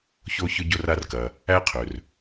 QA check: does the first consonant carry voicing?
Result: no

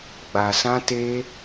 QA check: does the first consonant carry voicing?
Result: yes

